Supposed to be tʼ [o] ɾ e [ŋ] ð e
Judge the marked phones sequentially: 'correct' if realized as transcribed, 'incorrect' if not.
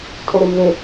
correct, incorrect: m

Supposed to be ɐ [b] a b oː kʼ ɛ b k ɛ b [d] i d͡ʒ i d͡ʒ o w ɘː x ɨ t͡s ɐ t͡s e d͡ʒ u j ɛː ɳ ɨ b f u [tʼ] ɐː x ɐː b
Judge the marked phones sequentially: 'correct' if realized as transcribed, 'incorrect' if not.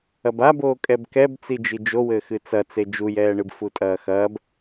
correct, incorrect: t͡s, correct

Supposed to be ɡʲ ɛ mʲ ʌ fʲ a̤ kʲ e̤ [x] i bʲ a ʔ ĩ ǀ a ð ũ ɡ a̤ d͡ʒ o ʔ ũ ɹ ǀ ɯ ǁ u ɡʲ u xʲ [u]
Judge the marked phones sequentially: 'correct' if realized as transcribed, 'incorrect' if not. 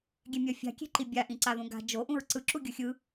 incorrect: ǃ, incorrect: ɯ

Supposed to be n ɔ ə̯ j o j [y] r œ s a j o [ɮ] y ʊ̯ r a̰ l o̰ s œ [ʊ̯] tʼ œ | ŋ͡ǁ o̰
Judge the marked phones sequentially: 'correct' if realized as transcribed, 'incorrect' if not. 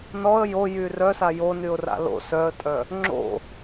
correct, incorrect: n, incorrect: ə̯

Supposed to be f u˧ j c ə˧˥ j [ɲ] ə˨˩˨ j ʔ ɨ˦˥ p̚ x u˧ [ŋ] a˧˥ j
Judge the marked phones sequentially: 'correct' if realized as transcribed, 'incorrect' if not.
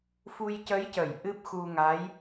incorrect: c, correct

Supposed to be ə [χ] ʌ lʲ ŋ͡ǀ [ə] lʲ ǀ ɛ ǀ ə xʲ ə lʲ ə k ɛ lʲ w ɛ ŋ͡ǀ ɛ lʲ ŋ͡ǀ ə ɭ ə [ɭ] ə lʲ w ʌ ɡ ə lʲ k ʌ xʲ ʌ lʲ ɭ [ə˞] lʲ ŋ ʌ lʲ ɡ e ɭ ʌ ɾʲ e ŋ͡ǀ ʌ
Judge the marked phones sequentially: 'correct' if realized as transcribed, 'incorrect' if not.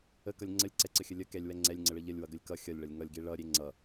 incorrect: k, correct, incorrect: ʎ, incorrect: ʌ

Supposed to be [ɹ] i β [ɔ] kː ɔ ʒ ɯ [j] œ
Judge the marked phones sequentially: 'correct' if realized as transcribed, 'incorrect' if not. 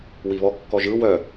incorrect: w, correct, incorrect: w

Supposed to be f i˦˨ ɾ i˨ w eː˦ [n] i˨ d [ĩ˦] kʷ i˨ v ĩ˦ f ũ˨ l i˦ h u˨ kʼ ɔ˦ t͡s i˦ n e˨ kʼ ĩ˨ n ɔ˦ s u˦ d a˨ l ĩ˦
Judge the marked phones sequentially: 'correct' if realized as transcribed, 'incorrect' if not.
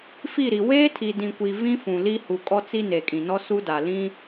incorrect: tʰ, incorrect: ĩ˨

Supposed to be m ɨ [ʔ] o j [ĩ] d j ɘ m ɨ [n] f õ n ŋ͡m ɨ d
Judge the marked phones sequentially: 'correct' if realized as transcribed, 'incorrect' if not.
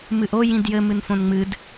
correct, correct, correct

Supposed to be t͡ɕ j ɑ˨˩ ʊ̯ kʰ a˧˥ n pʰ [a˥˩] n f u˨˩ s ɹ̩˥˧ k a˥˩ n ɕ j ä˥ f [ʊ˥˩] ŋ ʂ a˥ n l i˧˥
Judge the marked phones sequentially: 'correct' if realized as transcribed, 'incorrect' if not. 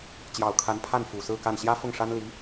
correct, correct

